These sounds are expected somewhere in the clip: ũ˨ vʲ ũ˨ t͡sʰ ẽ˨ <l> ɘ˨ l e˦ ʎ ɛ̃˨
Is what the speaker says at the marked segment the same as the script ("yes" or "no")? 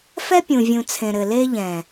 no